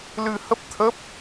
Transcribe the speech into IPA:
lɨ˧hə˦˥p̚t̪ʰə˦˥p̚

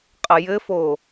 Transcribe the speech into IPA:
qʼəjɘfo

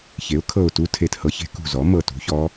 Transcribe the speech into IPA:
çe˩˥ʊ̯ kʰɤ˧˩ʊ̯tu˧˥ tʰe˧˩thɤ˧˥çe̤˧˥ kṳ˧˩zɔ˩˥ mɤ˧˩tṳ˩˥çɔ˧˥

